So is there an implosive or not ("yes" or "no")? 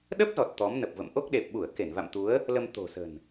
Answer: yes